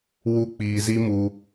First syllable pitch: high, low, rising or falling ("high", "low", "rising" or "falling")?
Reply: high